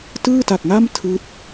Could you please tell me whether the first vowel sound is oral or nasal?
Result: oral